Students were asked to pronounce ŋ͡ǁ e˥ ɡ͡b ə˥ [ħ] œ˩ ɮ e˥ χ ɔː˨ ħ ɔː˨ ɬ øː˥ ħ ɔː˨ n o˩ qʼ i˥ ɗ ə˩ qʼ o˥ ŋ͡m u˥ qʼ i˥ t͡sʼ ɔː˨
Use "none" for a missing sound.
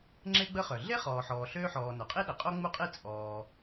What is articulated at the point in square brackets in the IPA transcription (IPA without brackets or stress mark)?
χ